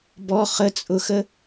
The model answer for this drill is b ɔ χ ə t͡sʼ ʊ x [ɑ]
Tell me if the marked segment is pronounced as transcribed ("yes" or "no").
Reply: no